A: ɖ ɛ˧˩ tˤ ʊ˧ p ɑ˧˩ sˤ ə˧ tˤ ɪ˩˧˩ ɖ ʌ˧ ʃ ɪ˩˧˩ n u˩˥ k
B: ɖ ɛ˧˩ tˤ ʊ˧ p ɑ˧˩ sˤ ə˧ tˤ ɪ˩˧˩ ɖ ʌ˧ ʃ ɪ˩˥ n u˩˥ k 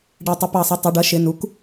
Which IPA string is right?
A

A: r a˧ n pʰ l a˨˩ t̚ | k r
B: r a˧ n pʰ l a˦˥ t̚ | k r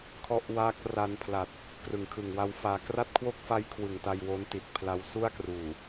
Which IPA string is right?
A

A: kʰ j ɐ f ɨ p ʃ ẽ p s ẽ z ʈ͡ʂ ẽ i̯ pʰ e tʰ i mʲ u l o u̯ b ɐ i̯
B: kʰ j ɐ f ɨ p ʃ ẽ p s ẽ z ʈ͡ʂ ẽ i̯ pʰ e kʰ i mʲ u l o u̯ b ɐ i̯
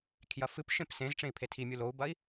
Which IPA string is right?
A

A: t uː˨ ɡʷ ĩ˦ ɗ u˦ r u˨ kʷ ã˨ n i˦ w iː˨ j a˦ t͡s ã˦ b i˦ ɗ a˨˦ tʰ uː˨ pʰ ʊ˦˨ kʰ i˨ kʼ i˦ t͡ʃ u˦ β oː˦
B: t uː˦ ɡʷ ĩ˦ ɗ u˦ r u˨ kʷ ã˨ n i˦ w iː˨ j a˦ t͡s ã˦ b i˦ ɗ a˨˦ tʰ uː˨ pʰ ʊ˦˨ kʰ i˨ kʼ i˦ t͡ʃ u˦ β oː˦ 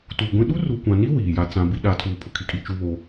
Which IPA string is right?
A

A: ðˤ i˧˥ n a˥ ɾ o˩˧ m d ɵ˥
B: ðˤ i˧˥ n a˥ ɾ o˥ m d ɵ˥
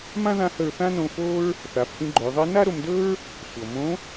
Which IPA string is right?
A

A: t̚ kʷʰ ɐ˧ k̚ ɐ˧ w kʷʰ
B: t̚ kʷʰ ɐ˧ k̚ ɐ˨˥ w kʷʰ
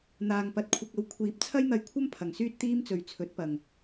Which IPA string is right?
A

